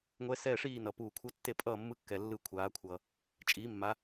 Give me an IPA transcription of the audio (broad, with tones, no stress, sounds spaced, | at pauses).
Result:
ŋʷ ɛ˦˥ s ɛː˥˨ ʂ iː˥˨ n ʌ˩ p uː˧˩ kʷʰ ʌ˦˥ tː e˥˨ pʼ ʌː˥˨ mː ɯ˦˥ kː ɛ˩ lː ɯ˧˩ kʷʰ aː˩˧ kʷʰ ʌː˩ | t͡ʃʼ iː˨˥ mː a˨˥